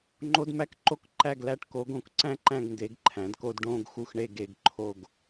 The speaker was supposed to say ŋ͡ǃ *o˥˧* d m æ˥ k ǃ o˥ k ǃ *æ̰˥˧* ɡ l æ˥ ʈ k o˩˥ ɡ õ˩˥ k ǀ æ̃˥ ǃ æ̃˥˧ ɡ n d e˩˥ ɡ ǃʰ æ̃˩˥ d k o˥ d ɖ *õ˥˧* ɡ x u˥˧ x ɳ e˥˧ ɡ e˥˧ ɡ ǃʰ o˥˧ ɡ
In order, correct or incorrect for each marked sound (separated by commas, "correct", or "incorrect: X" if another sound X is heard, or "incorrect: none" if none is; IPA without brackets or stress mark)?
incorrect: o˥, incorrect: æ˥˧, correct